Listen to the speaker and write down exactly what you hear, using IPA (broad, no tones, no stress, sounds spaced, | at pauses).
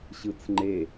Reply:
ɕ ɯ t͡s ŋ͡ǃ e